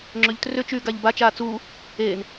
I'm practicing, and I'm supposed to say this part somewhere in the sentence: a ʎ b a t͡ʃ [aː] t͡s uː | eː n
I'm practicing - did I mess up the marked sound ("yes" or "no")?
no